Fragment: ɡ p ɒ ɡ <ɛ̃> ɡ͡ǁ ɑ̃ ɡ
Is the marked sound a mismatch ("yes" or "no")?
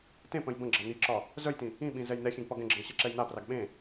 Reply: no